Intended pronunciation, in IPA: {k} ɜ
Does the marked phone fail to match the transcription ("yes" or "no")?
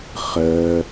yes